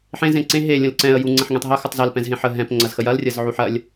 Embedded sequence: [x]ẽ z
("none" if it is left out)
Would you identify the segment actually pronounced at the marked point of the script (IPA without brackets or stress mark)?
ħ